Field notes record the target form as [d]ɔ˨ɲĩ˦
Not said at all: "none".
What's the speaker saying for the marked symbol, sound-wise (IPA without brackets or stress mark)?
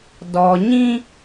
d